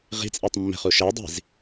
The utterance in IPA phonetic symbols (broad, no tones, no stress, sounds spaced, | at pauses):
ʁ i̤ t͡sʼ i tˤ mː ɛ̤ χ u ʃ ɛ dˤ i̤ z